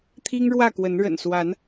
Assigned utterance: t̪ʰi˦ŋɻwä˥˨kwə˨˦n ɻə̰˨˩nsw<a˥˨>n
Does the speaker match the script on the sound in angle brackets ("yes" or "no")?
no